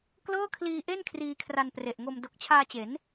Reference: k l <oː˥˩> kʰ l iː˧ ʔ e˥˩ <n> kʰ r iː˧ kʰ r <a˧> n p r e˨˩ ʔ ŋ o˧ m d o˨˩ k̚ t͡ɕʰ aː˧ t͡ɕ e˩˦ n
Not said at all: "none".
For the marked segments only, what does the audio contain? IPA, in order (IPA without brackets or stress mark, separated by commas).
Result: ɤː˥˩, n, a˧